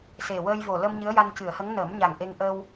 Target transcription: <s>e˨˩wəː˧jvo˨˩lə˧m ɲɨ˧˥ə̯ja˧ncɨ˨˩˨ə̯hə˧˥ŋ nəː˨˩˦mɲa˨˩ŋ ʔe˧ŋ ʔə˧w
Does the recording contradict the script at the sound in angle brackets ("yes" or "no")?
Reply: no